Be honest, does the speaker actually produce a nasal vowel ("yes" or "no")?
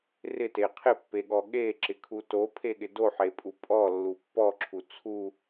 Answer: no